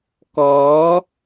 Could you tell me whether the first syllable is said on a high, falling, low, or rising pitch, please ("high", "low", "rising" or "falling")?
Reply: rising